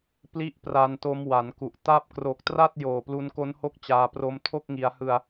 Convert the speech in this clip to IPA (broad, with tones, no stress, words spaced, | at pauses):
pli˥˩ʔpra˧nto˦˥m wa˩˦nku˨˩ʔ ta˦˥p̚kro˨˩k̚tra˥˩t̚ joː˨˩plu˧nko˦˥n ho˥˩k̚t͡ɕaː˧pro˦˥m tʰo˥˩k̚ŋi˩˦a̯hɯ˧a̯